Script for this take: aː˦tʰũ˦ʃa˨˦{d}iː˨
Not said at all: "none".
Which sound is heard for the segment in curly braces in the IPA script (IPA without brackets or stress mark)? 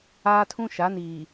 n